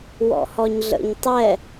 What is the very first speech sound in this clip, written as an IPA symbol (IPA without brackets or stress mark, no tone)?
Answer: w